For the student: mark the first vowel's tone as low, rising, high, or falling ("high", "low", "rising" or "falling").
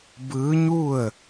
rising